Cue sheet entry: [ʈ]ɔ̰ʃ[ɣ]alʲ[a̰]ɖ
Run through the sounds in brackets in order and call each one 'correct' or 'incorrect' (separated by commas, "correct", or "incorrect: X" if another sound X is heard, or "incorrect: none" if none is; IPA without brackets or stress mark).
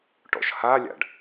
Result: correct, incorrect: h, correct